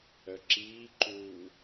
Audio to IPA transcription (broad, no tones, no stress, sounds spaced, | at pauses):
œ ǁ iː ǃ uː